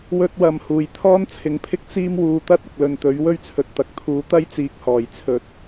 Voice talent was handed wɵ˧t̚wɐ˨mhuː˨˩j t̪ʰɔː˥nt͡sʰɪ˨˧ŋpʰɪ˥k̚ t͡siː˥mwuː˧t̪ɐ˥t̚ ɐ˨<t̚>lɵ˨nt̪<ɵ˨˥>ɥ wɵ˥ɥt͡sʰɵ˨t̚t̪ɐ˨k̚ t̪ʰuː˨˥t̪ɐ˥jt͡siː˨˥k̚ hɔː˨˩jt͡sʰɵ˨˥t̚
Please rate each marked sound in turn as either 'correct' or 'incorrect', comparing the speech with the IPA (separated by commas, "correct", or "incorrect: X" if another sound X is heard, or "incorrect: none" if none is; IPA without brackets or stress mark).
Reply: incorrect: k̚, correct